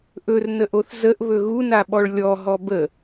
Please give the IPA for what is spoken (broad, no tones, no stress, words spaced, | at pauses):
ʔɵrnəʔoθ zəʔβɵ ɣunaɓɔɭ lʲɔ ɦɔbə